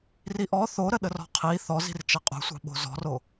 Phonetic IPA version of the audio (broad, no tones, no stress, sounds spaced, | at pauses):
r i ʔ ɔ θ o ɾ ə ɗ ə r ɔ̤ qʰ i θ ɔ z i̤ r t͡ʃ ɐ qʼ o̤ sʷ ɑ̤ ɓ o̤ z ɔ̤ r o